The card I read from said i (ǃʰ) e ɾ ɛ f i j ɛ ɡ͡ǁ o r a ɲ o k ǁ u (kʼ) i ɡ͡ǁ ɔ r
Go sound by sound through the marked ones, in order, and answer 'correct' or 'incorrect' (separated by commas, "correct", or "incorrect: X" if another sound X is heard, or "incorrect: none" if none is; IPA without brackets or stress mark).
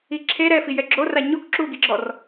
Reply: incorrect: ǁʰ, incorrect: ɡ